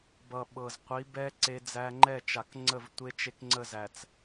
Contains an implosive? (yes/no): yes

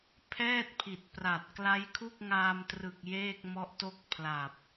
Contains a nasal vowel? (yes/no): no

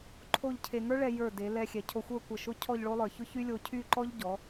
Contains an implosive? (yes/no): no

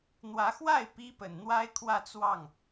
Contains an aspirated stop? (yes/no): yes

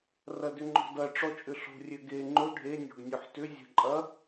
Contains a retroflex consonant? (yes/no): yes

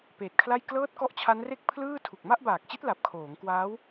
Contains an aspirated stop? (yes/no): yes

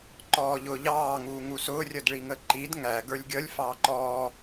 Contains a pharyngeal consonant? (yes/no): no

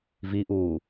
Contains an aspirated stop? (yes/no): no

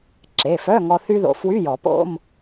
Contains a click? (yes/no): yes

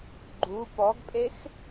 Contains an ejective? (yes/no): yes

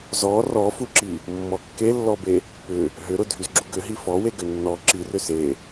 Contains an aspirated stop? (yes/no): no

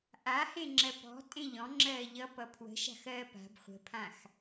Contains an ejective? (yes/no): yes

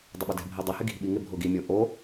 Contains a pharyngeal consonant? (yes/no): no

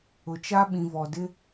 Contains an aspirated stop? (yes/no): no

